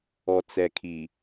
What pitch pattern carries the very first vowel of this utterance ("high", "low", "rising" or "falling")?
low